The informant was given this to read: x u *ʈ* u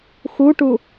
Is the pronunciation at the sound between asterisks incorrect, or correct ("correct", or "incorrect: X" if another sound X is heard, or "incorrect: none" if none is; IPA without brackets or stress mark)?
correct